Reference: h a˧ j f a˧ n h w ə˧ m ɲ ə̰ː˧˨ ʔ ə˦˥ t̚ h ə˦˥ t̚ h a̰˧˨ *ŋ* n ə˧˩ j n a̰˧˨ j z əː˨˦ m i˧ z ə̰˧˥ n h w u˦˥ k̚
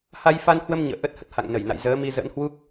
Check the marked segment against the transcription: correct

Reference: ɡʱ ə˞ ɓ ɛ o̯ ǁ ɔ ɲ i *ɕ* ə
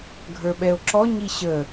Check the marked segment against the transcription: correct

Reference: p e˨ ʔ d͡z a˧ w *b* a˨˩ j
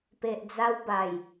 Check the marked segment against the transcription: correct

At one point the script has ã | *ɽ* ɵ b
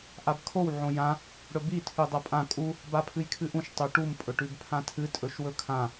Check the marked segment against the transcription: correct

